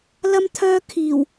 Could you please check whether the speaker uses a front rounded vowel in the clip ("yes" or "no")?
yes